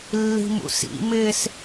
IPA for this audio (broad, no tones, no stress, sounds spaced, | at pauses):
lː i̤ m ṵ s ḭ m ɪː s